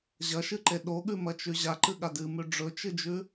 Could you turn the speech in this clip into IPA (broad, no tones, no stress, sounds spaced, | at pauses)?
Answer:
ʑ ɐ ʃ ɨ ǃ e ɗ o ɠ ʉ m ɐ t͡ʃ ʉ ʑ a ǃ ɨ ɠ a d ɨ m ʉ ɖ͡ʐ ɵ t͡ʃ ɨ d͡ʒ ʉ